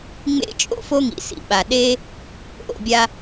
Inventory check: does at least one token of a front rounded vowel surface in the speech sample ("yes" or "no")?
no